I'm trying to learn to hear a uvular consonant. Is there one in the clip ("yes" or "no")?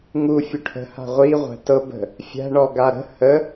yes